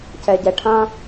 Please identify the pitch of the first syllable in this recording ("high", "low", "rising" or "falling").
low